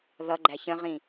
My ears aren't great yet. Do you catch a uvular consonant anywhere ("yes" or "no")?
yes